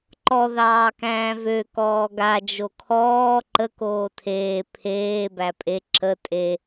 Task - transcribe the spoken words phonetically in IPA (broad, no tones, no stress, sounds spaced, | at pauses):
ǃ ɔ ð ɑː k æ̃ː v ø k ɔː ɡ a d͡ʒ o kʰ ɔː ǃ ə k oː tʰ eː pʰ eː b æ pʼ e ǁ ə tʼ e